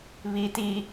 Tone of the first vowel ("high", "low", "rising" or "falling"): high